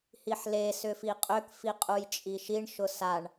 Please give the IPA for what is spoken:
hiħle sʏfiqʼøk fiqʼujt͡ʃʼiʃiɳ ʃʊsaɳ

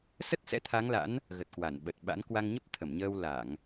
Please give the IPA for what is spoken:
sə˦˥t̚sɛ̰˧˥t̪ʰa˨˦ŋla̰˧˥n | ɣə˨˩t̚kwa˧˩nɓə˨˩t̚ ɓa̰˧˥n kwa˧ŋɲə˦˥p̚ t̪ʰə˧˩mɲəː˧w la˧˩˨ŋ

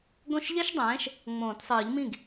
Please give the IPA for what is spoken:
ɡõ˥˩ʃʎɛ˥ʃdˤɛ̃ː˨˥ʃ | ŋ͡mõː˨˩˦tsˤɨː˨˩˦ʎmĩ˥˩ɡ

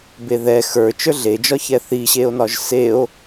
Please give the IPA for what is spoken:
beðɛ xə˞ t͡ʃə˞ɮed͡ʒɒ çɛθiɕeo̯nɒʒ seo̯

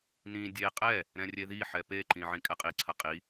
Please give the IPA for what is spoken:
nĩ dʲe qʼɛ | ɾɛ̃rʲeðiħɛ peǃĩ ʕĩkʼɛqʼiǀʰɐ qʼi

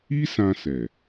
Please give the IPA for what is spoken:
i˦sã˧sɛ˨

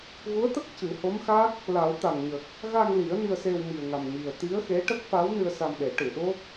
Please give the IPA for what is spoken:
ɣu˧˥ə̯t̪ə˦˥k̚ cɨ˨˩˦ho˧˥mxa˦˥k̚ | la˨˩˦w t̪a˨˩ŋɲə˨˩k̚ | ɣa˧ŋli˨˩˦ə̯ ni˧ə̯se˧wmi˨˩ə̯ŋa˨˩m ɲi˨˩ə̯t̪i˧˥ə̯xe˧˥ ʈə˦˥k̚fa˧˥wnɨ˧ə̯ sa˧mɗe˨˩˦ʈɨ˨˩˨ɗo˦˥k̚

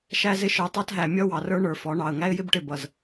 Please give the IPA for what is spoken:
ʃæ˦zɪ˦ ʃə˞˨tˤɑ˦tɦæ˨ mʲʌ˦ wɑ˨rə˞˦ ɳə˞˨fɔ˨˦ɳɑ˨ə̯ ŋæ˦ɪ̯jɪ˦bʈɪ˨ bʌ˨z

